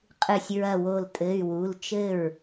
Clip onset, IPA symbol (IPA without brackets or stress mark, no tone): qʼ